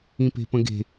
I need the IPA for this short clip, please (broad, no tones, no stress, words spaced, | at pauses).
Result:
ĩpe̤pə̃ɡe̤